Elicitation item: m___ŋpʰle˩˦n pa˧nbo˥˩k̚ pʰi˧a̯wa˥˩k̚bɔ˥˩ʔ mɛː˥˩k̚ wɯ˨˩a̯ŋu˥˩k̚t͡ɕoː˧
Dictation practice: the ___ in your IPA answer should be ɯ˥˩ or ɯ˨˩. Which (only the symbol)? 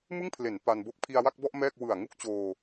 ɯ˥˩